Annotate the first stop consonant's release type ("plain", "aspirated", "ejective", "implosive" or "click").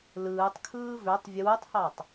plain